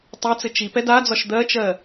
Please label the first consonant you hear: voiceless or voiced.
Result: voiceless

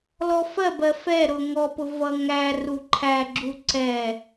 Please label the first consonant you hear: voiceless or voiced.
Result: voiced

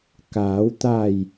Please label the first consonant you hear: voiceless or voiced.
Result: voiceless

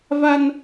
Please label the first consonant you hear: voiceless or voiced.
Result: voiced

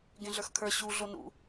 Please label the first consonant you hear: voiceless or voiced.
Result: voiced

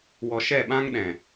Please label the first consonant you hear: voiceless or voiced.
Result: voiced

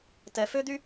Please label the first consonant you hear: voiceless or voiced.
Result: voiceless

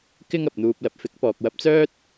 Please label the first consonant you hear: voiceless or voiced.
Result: voiceless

